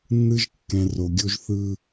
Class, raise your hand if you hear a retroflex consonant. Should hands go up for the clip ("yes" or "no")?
no